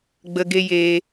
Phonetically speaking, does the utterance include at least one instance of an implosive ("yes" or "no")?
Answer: no